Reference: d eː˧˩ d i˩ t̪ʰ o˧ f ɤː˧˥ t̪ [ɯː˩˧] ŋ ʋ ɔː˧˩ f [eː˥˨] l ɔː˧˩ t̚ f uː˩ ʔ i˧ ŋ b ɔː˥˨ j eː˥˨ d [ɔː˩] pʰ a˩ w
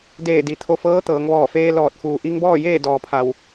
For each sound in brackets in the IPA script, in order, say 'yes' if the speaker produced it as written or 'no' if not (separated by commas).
no, no, yes